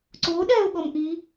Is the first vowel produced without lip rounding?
no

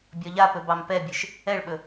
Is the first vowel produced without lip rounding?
no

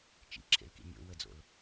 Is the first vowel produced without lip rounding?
yes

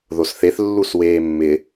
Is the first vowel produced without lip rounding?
no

